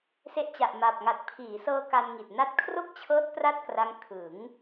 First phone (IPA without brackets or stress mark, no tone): s